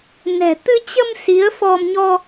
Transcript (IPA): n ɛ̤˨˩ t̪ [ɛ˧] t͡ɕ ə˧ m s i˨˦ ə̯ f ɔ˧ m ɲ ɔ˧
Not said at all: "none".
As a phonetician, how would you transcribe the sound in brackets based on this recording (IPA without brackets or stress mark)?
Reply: ɨ˧